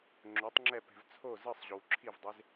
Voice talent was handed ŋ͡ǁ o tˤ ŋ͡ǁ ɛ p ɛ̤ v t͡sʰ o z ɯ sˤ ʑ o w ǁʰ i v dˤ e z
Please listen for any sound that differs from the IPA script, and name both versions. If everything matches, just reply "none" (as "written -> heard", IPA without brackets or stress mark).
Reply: none